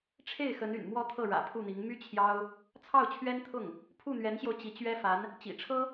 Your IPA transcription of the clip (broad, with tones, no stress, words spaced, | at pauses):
ʈ͡ʂʰe˥˩ɪ̯xə˧˥n y̰˨˩nmwɔ˥t̪ʰɤ˥˩ ɻä̰˨˩pʰu˥˩n̪i˧˥ŋ my˥ t͡ɕʰjɑ˥ʊ̯ | t͡sʰɑ˥˩ʊ̯t͡ɕʰɥɛ˥nt̪ʰʊ˥˩ŋ | pʰu˥˩n̪ɥɛ˧˥nɕjo˧ʊ̯ t͡ɕi˧˥t͡ɕɥɛ˥ fa˧˥n | t͡ɕḭ˨˩ʈ͡ʂʰɤ˥